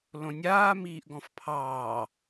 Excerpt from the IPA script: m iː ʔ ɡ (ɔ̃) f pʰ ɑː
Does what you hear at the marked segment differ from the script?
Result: no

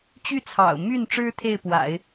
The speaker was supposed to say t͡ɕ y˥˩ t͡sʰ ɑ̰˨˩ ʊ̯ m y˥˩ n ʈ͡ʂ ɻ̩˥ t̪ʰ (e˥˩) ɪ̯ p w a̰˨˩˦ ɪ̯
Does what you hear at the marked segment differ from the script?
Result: no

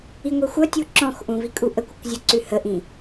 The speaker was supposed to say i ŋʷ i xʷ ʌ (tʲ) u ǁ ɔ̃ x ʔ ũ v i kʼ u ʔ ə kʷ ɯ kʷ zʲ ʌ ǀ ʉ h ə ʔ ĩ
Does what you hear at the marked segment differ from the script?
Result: no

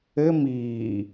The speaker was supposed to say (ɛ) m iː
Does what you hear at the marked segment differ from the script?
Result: yes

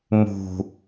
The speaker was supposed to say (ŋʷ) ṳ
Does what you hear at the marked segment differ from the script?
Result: yes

